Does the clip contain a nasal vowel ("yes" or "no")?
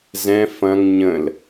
yes